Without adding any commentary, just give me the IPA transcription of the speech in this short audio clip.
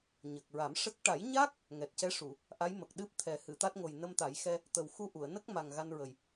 ɲ ə˨˩ k̚ ɹ a˨˩˦ m ʂ ə˦˥ k̚ ʈ a˨˩˦ j ɲ a˦˥ k̚ | ŋ ɛ˨˩ t̚ c ɛ˧˥ ʂ u˨˩˨ | ʔ a˧˥ j m ə˨˩ k̚ ɗ ɨ˦˥ p̚ t̪ʰ ɛ˨˩˦ h ɨ˨˩˨ t̪ a˦˥ t̚ ŋ o˨˩ j n ə˧ m t̪ a˨˩˦ j x ɛ˧ | t̪ ə˨˩ w x u˧ ʔ u˨˩˨ ə̯ n ə˦˥ k̚ m a˨˩ ŋ ɣ a˧ n ɹ ə˨˩ j

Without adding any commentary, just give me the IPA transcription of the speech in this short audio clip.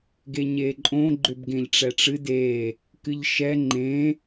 ɡ e ɲ e ǃʼ õ ɡ͡ǃ ʏ b ɡ ẽ ʎ ʈ͡ʂ ɛ ʈ͡ʂ ɨ d e | k ɨ ʎ ʃ ɛ ŋ͡ǃ ẽ

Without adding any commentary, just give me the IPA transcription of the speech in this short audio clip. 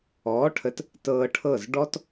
ɔː˩˥ ʈʰ ə˩˥ t | t ɤː˧ ʈʰ ɤ˥˩ z ɖ ɔ˥ t

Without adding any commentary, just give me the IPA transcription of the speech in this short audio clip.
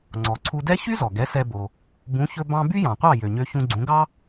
ŋ͡ǀ ɔ˩ ǀʰ u˧ d ɛ˥ ç y˥ z ɔ˩ ɡ ɛ˩˥ s ɛ˧ b o˩ | b ũ˩˥ ç ɵ˧ b ɑ̃˧ b y˥ j ɑ̃˩ qʷ ɑ˥˩ j ø˩ ɲ ø˧ ç ũ˧ ɡ͡ǀ ũ˩˥ ɡ ɑ˥

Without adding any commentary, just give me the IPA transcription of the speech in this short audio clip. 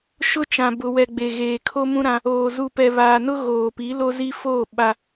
ʃ ʊ˦ t͡ʃ ã˨ b ʊ˨ w ɛ˨ ɡ͡b e˨ ɣ eː˨ kʰ o˦ m ũ˦ ɾ ã˦ | oː˨ z u˨ p ɛ˨ β aː˨ n ʊ˦ ɣ oː˨ p i˨˦ l o˦ z i˦ f oː˦˨ ɓ a˨

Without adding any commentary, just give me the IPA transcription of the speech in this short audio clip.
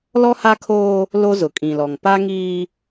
l ɔ˦ h a˦ kʰ oː˦ | l o˦ z ʊ˨ kʼ ĩ˨ l ɔ˨ ŋ p a˦ ŋ iː˦

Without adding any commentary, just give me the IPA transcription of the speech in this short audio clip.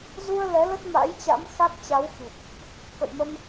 z u˧ ə̯ l ɛ˨˦ l ə˦˥ t̚ m a̰˧˥ j t͡ɕ a̰˧˥ m x a˦˥ k̚ t͡ɕ a˨˦ w x i˨˩ p̚ | k ə̰˧˨ j m ə˧ m

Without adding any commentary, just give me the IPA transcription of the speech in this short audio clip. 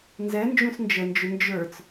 n z ɛ n d͡ʒ ũ s n d͡ʒ ə n d͡ʒ ʊ n d͡ʒ ə˞ t͡s

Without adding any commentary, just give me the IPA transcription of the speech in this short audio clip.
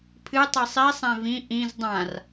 pʰ ɨ tˤ i sˤ i sˤ ɛ̃ v ĩ ʔ ĩ z dˤ ã r

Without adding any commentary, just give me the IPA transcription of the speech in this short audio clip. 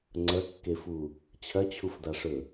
ŋ͡ǀ ɐ kː e f u | t͡ɕʰ ɐ t͡ɕʰ u f d a ʂ ɵ

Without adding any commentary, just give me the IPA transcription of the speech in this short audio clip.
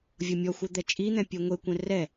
vʲ ɤ mʲ ɔ xʷ ɤ d̪ ɛ t͡ʃʼ i n̪ ɛ̃ pʲ e ŋʷ e kʷ ɛ̃ r ɛ

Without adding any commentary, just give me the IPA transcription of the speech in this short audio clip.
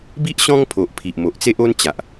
b i˦ ʔ ɕ ɔ̃˦ ŋ pʰ o˨ ʔ pʰ i˨ ʔ m o˨ ʔ t͡s e˦ ʔ o˦ n t͡ɕ a˨ ʔ

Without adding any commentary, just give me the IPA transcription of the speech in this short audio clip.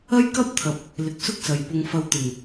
ɐ˥ j k ɐ˥ p̚ t̪ʰ ɐ˨ p̚ | l ɪ˨˥ k̚ s ʊ˥ k̚ s ɐ˨ j p ʊ˧ ŋ f ɐ˧ w t̪ ɪ˨˩ ŋ

